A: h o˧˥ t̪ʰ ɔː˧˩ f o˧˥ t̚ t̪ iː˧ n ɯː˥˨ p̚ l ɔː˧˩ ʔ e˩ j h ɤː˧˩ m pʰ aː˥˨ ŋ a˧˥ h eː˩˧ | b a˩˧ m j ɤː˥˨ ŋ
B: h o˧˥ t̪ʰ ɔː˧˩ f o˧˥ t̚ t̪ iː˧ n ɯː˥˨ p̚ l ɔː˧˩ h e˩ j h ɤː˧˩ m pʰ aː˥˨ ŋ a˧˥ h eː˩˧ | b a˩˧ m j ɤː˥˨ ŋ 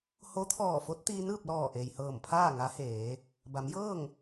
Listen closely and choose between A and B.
A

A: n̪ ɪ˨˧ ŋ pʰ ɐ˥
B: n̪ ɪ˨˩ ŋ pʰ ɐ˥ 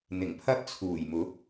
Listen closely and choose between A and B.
B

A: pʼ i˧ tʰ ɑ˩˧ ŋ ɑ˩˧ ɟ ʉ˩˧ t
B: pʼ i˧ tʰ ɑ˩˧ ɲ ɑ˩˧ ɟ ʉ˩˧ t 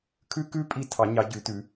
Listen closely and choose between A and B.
B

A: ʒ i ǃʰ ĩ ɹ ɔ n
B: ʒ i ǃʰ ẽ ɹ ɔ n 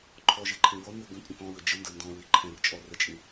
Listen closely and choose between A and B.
B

